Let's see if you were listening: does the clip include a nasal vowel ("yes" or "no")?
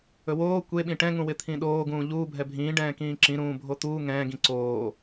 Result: yes